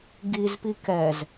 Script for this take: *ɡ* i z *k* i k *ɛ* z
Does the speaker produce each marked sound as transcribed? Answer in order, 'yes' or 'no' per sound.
yes, no, yes

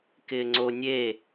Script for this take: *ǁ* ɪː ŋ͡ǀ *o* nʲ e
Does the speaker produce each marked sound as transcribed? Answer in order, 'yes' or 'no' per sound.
no, yes

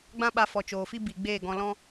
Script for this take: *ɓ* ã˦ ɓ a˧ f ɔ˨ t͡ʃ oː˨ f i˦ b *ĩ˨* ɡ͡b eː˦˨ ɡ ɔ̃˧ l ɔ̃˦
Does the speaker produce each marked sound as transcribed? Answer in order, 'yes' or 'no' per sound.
no, no

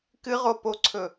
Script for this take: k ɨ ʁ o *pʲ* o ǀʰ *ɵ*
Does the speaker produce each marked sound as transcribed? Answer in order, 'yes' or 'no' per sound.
no, yes

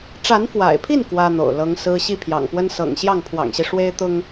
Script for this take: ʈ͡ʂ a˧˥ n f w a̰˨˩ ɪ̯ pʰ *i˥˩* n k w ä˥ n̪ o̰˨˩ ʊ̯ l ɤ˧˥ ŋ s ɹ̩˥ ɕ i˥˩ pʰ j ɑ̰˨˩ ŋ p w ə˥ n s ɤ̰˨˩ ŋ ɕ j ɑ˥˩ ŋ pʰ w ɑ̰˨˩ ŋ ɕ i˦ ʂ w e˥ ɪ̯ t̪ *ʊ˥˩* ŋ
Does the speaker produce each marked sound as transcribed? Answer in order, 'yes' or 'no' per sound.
yes, no

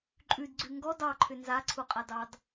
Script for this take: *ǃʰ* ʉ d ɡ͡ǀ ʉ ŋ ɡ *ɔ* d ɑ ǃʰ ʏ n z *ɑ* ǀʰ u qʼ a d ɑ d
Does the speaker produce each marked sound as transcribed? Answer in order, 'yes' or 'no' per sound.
no, yes, no

